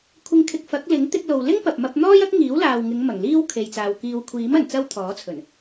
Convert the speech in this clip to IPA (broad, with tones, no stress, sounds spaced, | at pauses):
kʷʰ ɪ˨ ŋ kʰ ɪ˨ k̚ f ɐ˨˥ k̚ l ɪ˨˥ ŋ t̪ ɪ˧ k̚ l o˨ w l ɪ˥ ŋ p ɐ˨ p̚ m ɐ˧ p̚ n̪ ɔː˥ j ɐ˥ k̚ ŋ iː˨˥ w l aː˨ w ŋ ɪ˨˧ ŋ m ɐ˨˩ ŋ l iː˥ w kʰ e˨ j t͡s aː˨ w k iː˨ w kʷʰ iː˨˥ m ɐ˨˩ n t͡s ɐ˥ w t̪ʰ ɔː˨˥ t͡sʰ ɵ˨˩ n